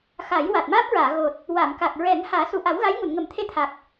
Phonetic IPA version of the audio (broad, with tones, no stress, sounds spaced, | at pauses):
x a˨˩˦ j w a˨˩ t̚ m aː˦˥ p̚ ɹ aː˨˩˨ ɣ o˨˩ t̚ | w a˨˩˨ m k a˨˩ k̚ ɹ ɛ˨˩˦ ŋ h aː˨˩˦ s u˨˩ ʔ a˨˩˦ w ɣ a˧˥ j ŋ u˨˩˨ n ŋ ə˨˩˦ m t̪ʰ e˧ t̪ʰ a˨˩ k̚